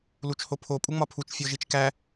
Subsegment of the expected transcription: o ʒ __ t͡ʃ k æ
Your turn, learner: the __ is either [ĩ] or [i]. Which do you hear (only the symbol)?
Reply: i